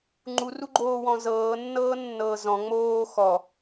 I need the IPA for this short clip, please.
ŋ͡ǃ u r u ɡ͡ǃ oː w ɔ̃ z ɤː nː ɤː nː ɤː z ɔ̃ ŋ͡m oː x ɔ

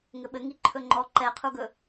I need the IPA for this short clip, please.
ŋ ɘ ɓ ɘ ŋ i ǃʰ ɵ ŋ͡ǃ ɔ ǃ ɛ qʰ u ɡ ɵ

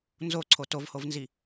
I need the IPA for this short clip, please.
n z o ǀʰ o t o v h o v n z i

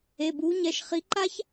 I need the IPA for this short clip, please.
e˩˧˩ b uː˨˥ ɲ ɛ˩˧˩ ʃ χ i˨˥ ǃ a˥ ç

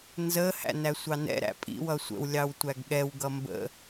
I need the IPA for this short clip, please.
n z ə h æ̰ n æ sʷ ɑ n ɛ̰ ɾ æ̰ pʼ ḭ w ʌ sʷ ə̰ w lʲ ɑ w tʷ æ ɡ ɠ ɛ w ɡ ʌ m b ə̰

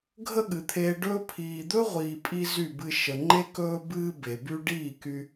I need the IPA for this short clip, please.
ɡʱ ə˦ ɠ ɨ˨ t̪ʰ eː˧ ɖ ɵː˧ pʰ iː˨ d̪ ɵ˦ ʁʷ iː˨ pʼ i˦ z y˦˨ b ɨ˧ ʃ ə˨ ŋ͡ǃ e˦ k ɵː˦ b ɨː˧ b e˨ b y˦ ɖ iː˦˨ k y˧

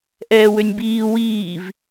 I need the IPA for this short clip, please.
ʔ ɛː w ø nʲ b iː w iː v

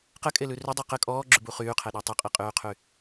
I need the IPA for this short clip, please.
q ɘ kʼ e l ʉ r ʏ dˤ ʉ q ɘ kʼ ɔː ɡ͡ǁ ʉ b u χ yː qʰ ɛ ɗ ɔ tˤ ɛ qʼ i qʼ yː qʰ y

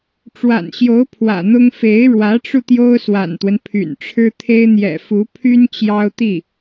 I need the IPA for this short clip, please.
ʈ͡ʂ w a̰˨˩ n ɕ j o˧˥ ʊ̯ pʰ w ä̰˨˩ n̪ ʊ˥ ŋ f e˧˥ ɪ̯ ɻ w ä˧˥ ʈ͡ʂ u˧ t̪ j o˥ ʊ̯ s w a̰˨˩ n t̪ w ə˦ n pʰ y̰˨˩ n ʈ͡ʂʰ ɻ̩˥ t̪ʰ e˥ ɪ̯ n̪ j ɛ̰˨˩ f u˧˥ pʰ y˥ n t͡ɕ j ɑ˥ ʊ̯ t̪ i˥˩

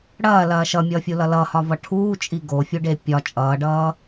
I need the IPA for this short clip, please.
ɽ ɐː l ɐː ʃ ʌ mʲ ʌː fʲ u l ʌ l ʌ h ɒ v ʌ ʈʰ uː t͡ʃʼ i ɡ o fʲ u ɖ e pʲ ɒ t͡ʃʼ ʌː ɖ ʌː

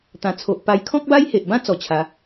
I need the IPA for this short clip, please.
t̪ ã˨˩ t͡sʰ o˨ ʔ p a˧ j kʰ ɔ̃˦ k̚ b a˦ j h e˨ ʔ b ã˦ t͡s ɔ˧ t͡ɕʰ a˨˦

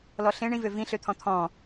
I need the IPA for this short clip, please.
l ɔ ɬ ẽ ɳ ĩ v ø v ĩ ɬ ø t̪ʰ ɔ̃ t̪ʰ ɔ̃

